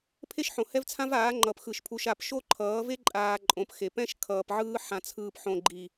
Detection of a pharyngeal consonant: present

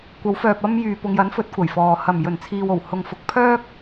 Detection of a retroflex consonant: absent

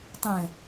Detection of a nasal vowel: present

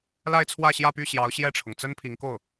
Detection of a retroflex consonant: present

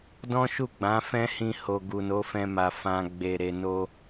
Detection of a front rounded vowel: absent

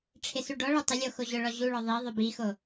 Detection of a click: absent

